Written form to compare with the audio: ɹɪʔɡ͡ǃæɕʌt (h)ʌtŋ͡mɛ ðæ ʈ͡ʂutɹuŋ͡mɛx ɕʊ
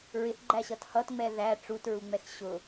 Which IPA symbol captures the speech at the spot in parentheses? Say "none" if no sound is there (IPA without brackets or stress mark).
h